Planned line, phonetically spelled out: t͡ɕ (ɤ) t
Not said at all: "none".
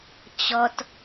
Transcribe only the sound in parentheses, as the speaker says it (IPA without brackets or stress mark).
ɔ